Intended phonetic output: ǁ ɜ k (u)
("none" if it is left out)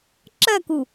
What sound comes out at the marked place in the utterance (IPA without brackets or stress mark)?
u